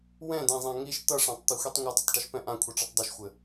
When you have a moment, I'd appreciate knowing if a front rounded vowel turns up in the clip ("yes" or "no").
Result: no